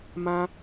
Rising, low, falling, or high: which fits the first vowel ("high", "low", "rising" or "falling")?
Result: high